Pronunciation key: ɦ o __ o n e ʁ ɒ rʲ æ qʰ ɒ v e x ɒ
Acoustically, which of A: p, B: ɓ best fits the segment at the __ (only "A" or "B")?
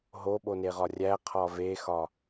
B